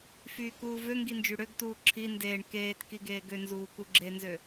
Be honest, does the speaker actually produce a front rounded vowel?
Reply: yes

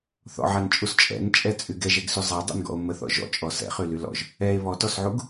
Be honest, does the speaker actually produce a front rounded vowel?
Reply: yes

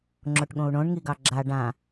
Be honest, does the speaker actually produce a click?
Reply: yes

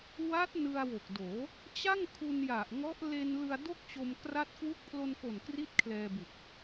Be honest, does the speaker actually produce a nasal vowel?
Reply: no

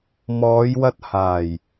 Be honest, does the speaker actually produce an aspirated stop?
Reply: no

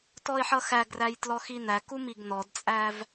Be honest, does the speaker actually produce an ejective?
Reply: yes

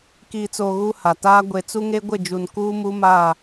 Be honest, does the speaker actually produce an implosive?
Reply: no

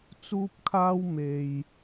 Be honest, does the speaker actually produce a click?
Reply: no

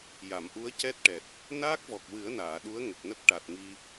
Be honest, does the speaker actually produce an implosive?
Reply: yes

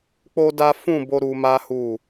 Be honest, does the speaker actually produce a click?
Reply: no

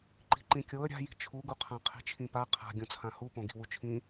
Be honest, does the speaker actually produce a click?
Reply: yes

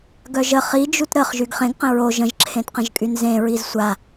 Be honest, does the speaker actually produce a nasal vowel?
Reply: yes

